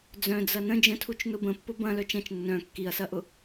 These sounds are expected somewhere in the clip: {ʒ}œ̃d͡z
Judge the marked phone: incorrect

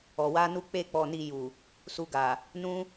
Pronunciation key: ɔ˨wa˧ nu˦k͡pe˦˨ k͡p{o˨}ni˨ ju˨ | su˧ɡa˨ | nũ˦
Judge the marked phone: incorrect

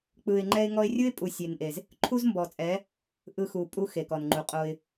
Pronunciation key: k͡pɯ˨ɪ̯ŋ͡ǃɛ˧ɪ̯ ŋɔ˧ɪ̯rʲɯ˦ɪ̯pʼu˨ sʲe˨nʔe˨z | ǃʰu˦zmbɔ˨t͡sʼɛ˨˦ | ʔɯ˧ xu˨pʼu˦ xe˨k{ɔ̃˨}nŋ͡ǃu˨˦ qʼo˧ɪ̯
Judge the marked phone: incorrect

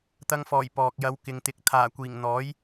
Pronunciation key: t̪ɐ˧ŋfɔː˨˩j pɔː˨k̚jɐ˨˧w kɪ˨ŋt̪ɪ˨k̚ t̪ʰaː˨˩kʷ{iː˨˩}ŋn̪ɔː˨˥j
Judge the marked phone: correct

